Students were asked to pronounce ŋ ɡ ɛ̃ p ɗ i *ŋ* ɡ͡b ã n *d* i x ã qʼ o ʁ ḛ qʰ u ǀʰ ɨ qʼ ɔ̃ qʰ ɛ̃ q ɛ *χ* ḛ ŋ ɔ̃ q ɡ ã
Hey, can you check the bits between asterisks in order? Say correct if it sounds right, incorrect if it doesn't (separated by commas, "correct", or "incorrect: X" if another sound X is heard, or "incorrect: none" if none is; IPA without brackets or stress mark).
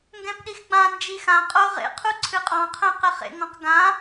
incorrect: x, incorrect: d͡ʒ, correct